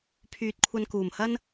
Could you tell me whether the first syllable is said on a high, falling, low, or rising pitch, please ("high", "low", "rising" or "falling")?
low